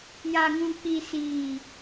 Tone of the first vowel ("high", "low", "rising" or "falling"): low